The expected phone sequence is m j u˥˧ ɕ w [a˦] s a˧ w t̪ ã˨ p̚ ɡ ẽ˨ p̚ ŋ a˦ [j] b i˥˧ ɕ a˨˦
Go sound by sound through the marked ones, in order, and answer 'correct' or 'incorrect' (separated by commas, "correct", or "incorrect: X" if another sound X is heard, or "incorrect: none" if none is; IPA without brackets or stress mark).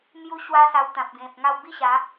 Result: correct, incorrect: w